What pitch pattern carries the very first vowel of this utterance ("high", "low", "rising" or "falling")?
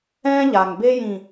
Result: high